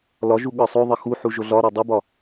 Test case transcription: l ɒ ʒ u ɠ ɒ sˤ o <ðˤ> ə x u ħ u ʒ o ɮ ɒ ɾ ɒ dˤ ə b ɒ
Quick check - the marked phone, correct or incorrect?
correct